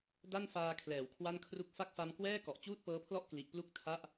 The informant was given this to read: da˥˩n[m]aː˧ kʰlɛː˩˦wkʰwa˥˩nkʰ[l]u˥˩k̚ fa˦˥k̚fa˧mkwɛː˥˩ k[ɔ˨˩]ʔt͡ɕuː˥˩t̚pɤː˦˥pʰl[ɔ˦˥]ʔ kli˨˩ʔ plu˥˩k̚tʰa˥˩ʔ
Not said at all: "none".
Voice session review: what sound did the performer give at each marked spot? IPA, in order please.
f, r, ɔ˨˩, ɔ˥˩

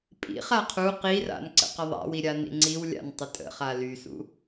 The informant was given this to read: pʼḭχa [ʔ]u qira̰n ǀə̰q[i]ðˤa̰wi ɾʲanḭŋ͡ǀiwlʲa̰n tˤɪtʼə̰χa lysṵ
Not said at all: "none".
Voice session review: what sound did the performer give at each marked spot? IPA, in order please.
qʰ, ɪ

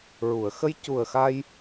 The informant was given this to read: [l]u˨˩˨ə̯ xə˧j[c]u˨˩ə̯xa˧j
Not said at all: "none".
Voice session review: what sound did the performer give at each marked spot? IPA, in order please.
ɹ, c

